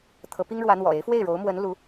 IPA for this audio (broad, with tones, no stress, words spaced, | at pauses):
t̪ʰɤ˧˥pi˥ŋɻwä˧˥ n̪wɔ̰˨˩ e˧˥ɪ̯fwe˥˩ɪ̯ɻo˧˥ʊ̯mwə˧˥n lu˧˥